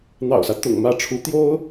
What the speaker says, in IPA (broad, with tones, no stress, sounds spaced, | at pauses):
n̪ ɑ̰˨˩ ʊ̯ s ä˦ t̪ ʊ̰˨˩ ŋ m ä˥˩ ʈ͡ʂʰ u˧˥ t̪ j o˥ ʊ̯